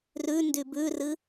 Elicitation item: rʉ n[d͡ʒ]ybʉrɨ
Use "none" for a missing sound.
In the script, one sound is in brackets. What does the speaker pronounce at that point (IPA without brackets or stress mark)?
d